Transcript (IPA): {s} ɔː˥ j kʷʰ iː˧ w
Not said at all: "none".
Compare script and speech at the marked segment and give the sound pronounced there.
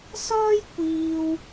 s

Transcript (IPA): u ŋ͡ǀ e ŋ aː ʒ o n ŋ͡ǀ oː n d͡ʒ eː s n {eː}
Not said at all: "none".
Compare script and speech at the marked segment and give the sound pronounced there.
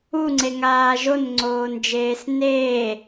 eː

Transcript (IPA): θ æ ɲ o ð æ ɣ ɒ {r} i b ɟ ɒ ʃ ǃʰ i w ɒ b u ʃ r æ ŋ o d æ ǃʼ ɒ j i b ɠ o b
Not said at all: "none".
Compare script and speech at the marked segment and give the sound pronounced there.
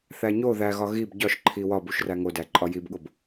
ɣ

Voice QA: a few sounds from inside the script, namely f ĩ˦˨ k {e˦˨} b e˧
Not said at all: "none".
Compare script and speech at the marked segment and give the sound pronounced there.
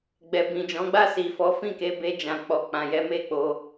e˨˦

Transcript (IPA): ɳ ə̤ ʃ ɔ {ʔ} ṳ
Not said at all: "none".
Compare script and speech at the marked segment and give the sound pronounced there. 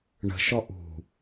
ʔ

